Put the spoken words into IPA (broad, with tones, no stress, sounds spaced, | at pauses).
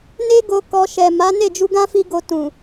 n e˦ ɡ o˦ k ɔ˧ ʃ ɛ˨ m a˨˦ n e˦˨ d͡ʒ u˧ ɡ ã˦ f i˦ ɡ o˧ t ũ˨